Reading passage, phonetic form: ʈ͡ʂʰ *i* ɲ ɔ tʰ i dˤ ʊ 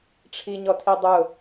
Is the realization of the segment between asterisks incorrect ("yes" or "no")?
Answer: no